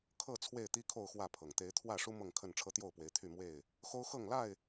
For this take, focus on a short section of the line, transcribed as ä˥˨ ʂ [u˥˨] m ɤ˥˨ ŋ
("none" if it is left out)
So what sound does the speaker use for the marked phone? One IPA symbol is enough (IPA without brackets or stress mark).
u˦